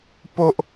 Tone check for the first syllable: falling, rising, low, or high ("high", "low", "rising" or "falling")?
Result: high